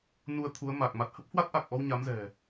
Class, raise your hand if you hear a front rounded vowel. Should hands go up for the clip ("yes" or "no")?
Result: no